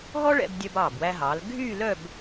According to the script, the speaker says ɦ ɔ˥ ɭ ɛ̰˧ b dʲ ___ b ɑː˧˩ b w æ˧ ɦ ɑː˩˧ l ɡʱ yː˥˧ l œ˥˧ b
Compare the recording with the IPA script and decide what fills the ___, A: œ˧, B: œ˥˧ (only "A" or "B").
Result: A